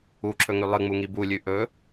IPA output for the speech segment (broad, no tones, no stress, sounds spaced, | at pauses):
u ǁʰ ɵ ŋ ʉ lˠ ɨ ŋ͡m u ŋ i b u lʲ ʉ ʔ ɵ